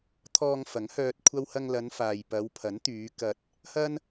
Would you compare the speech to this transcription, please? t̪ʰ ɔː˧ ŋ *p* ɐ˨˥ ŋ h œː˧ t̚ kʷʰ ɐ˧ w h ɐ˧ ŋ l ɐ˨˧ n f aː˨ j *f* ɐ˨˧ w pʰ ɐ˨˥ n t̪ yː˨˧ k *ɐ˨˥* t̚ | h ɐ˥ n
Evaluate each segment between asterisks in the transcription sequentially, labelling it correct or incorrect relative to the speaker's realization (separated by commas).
incorrect, incorrect, incorrect